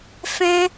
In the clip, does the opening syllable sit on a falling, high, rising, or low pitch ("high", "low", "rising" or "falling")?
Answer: high